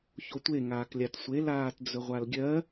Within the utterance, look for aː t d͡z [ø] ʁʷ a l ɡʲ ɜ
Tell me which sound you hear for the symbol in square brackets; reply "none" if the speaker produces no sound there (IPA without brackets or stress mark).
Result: ɵ